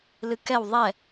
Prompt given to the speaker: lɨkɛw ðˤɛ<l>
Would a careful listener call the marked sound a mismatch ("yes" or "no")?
yes